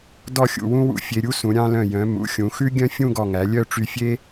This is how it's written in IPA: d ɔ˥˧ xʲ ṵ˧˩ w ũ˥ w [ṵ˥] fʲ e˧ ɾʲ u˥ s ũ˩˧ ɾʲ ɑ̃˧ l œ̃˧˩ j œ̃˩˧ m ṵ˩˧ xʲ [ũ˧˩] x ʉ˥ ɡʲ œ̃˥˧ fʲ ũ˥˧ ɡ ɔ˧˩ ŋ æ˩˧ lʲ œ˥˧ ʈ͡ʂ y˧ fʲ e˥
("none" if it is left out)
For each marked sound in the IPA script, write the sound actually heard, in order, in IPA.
ṵ˧, ũ˩˧

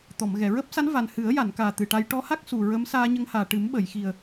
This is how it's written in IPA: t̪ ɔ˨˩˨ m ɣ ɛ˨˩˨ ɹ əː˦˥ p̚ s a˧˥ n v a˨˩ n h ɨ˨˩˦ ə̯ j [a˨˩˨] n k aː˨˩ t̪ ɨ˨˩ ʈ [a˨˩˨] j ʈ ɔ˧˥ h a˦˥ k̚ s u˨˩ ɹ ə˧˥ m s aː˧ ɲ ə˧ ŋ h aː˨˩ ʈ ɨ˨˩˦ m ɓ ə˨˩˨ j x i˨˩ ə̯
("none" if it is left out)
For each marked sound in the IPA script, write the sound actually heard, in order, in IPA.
a˨˩˨, a˧

